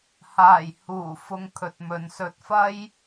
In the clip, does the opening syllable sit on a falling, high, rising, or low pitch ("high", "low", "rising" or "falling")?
low